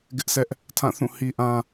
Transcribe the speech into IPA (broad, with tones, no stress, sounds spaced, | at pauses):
ɡ ɪ˦ ʔ sʰ ɛ˦ ʔ | tʰ ã˦˨ θ ũ˦˨ h i˦ ʔ ã˦